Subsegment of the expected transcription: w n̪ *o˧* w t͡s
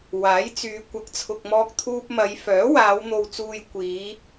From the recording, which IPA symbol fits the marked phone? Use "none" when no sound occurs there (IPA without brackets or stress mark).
o˨